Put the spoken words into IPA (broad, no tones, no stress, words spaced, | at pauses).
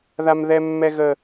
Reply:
ðamðɛmːɛɣə